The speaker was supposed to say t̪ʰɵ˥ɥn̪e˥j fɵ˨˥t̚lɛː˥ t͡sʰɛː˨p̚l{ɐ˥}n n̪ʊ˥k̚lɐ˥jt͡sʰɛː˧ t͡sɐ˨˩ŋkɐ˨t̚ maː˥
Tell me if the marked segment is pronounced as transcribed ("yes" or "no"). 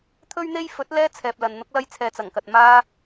no